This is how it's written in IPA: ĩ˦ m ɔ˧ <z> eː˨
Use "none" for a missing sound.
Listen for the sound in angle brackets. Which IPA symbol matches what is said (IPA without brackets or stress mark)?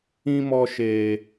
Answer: ʃ